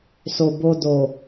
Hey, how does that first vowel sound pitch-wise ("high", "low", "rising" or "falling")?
low